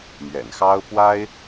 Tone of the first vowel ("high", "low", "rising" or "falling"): low